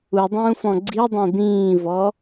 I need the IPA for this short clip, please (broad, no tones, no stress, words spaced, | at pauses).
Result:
udˤũːfɔ̃ ɡ͡ǀidˤẽ d̪ĩːvɔ